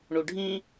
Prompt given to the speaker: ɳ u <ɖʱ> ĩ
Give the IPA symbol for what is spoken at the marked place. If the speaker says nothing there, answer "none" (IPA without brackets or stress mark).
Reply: ɖʱ